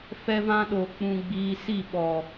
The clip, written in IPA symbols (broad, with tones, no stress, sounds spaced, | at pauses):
f ɛ˧ v ã˧ ɗ o˨ k͡p ũ˧ ɡ͡b iː˧ s i˦˨ ɓ ɔ˨